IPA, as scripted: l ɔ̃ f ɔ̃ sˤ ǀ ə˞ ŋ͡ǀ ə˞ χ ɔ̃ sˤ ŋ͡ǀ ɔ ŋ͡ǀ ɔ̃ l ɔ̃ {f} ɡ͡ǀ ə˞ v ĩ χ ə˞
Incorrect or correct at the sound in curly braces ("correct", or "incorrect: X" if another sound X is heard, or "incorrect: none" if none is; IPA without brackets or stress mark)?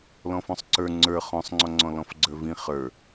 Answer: correct